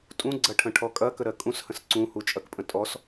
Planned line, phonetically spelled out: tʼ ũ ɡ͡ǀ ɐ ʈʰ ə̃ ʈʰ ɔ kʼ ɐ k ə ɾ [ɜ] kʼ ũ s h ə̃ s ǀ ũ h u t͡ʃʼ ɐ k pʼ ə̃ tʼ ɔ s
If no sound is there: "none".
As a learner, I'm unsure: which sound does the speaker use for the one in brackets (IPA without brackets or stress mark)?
ɜ